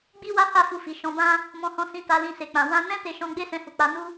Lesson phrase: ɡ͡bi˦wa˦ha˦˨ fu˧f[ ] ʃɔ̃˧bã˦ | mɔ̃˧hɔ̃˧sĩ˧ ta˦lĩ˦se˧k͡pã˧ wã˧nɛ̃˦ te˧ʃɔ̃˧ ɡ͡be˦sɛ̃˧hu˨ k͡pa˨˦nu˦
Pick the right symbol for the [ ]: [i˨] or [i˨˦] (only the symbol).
i˨